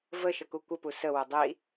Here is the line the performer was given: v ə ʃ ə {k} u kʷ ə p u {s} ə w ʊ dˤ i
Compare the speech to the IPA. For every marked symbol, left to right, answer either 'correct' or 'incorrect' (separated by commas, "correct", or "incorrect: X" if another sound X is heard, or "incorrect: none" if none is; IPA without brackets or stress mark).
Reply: correct, correct